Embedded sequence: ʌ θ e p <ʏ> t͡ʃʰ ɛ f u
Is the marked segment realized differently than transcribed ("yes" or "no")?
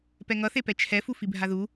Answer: yes